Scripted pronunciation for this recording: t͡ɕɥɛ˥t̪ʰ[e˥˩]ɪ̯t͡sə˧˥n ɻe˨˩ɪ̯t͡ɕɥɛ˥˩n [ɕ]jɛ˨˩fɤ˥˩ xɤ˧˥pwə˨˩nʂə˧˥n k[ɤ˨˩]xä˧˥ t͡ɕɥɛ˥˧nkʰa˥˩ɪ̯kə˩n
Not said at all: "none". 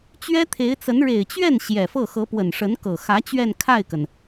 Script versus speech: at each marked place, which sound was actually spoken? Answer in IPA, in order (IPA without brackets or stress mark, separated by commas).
e˧˥, ɕ, ɤ˨˩